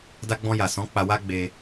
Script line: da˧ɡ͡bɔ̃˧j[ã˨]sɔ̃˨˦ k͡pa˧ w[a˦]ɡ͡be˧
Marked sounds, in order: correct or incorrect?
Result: incorrect, correct

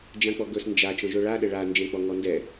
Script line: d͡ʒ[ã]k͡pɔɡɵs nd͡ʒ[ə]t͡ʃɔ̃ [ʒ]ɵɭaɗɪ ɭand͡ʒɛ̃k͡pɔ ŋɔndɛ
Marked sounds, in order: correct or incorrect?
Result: correct, incorrect, correct

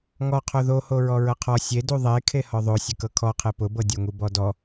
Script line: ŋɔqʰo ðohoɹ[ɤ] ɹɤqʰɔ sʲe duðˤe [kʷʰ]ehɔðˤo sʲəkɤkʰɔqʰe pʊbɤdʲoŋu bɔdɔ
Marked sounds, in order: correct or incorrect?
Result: incorrect, incorrect

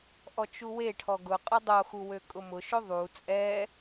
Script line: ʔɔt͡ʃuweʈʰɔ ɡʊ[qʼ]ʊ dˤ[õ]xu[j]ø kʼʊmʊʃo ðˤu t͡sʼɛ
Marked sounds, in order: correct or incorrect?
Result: correct, incorrect, incorrect

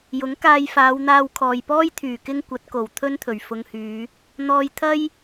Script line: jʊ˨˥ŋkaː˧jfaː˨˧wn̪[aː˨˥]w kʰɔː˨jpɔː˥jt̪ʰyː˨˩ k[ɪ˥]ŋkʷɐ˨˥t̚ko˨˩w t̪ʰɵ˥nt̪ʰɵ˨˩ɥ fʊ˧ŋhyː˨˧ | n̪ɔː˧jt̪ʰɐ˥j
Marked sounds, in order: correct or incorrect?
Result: incorrect, correct

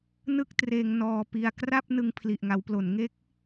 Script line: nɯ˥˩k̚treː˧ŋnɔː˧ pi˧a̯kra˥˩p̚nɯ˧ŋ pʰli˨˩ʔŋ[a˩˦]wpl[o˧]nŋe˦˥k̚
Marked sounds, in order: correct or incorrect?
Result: correct, incorrect

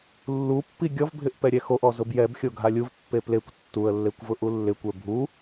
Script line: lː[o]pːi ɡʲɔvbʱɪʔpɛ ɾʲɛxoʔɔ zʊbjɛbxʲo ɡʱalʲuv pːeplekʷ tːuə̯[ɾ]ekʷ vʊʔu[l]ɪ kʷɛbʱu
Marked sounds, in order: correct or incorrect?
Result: incorrect, incorrect, incorrect

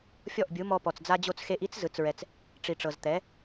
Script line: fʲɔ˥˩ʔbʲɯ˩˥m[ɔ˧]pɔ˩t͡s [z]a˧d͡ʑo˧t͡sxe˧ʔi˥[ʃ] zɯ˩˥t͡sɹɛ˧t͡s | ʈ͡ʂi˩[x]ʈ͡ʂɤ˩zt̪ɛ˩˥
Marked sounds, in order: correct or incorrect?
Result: correct, incorrect, incorrect, incorrect

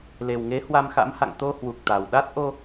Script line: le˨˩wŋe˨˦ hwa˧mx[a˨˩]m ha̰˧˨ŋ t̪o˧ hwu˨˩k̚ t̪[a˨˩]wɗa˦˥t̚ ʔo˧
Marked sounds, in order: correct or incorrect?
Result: incorrect, correct

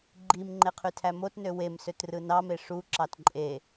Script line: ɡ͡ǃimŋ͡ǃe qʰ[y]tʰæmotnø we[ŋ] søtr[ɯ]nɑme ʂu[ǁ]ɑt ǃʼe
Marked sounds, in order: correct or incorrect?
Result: correct, incorrect, correct, correct

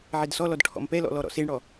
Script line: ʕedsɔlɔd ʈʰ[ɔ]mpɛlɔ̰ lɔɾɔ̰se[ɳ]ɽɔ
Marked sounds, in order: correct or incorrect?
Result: incorrect, correct

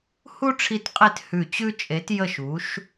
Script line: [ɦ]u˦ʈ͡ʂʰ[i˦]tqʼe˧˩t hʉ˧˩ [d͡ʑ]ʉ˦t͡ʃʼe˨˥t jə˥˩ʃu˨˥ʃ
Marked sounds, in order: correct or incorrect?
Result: incorrect, incorrect, incorrect

